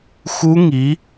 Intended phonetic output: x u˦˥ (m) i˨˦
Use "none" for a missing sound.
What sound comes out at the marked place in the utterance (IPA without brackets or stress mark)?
ŋ